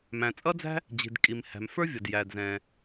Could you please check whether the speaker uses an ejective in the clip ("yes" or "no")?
yes